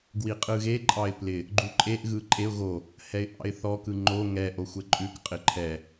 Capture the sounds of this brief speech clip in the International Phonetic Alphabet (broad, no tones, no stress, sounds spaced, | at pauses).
ɡ w i qʼ ɯ ɣ e ǃʼ ɑ ɪ̯ p l ɪ | ɡ͡ǃ u ǃʼ e ʔ ɣ ɯ ǃʼ e ʊ̯ ɣ o | h ɛ ɪ̯ ʔ ɑ̰ ɪ̯ θ ɔ k ɯ ŋ͡ǃ o ŋ ɛ ʔ o xʷ ɛ ǃʼ ʉ k qʼ ɪ ǃʰ ɛ